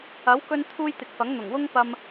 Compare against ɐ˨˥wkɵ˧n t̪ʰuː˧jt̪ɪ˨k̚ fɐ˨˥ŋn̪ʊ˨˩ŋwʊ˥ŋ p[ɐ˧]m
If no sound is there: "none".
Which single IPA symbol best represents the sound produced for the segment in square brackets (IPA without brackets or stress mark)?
ɐ˧